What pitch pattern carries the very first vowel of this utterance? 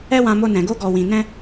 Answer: high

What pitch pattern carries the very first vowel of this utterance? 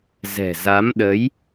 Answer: low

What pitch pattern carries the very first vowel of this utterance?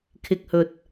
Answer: low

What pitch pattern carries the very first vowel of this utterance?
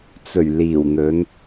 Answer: low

